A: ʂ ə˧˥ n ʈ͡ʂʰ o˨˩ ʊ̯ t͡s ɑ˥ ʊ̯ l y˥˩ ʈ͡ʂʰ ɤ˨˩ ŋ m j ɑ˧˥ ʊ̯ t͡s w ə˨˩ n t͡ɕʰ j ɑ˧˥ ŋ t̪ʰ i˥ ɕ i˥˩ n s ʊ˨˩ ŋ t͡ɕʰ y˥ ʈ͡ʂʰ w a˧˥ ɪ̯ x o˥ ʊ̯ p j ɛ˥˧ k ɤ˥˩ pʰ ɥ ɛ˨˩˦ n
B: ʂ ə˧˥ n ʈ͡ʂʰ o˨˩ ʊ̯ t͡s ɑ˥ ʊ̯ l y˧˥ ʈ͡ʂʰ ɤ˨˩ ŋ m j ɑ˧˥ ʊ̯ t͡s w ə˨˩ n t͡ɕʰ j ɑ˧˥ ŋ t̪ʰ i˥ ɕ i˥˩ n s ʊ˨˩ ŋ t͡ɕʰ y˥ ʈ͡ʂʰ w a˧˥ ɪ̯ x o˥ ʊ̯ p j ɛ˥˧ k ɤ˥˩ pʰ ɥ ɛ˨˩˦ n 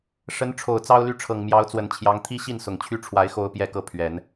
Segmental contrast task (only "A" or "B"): A